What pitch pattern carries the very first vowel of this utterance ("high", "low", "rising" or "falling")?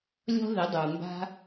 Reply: high